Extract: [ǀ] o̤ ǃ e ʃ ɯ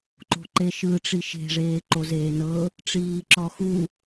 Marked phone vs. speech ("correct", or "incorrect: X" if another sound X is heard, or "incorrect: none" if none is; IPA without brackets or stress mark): incorrect: ǃ